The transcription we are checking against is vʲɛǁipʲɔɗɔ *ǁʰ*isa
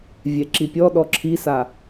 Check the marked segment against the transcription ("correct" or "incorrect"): correct